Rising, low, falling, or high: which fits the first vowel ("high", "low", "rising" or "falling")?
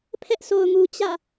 high